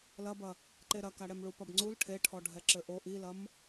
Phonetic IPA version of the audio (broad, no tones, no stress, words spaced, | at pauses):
lɐbɐ | ǃeɾɐkaɽɛm ɭupɐbŋ͡ǀul ʈʰe ʈʰɔɖʱɛǁɘʔo ʔilɐm